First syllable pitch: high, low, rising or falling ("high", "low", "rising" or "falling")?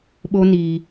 high